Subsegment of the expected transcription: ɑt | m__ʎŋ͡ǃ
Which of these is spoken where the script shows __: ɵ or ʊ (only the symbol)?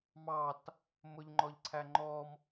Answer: ʊ